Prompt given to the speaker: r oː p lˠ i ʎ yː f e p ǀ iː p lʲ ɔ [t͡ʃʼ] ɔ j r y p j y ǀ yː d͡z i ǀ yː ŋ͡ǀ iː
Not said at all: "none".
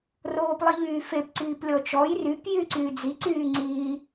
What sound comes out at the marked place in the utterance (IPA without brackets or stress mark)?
t͡ʃ